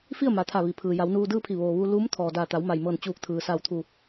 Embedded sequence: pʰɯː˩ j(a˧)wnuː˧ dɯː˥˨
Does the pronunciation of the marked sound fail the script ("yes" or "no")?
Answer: yes